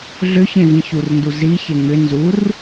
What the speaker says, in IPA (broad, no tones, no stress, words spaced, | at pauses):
ɮʏçẽvĩ çurndu ziçe ŋʏ nzur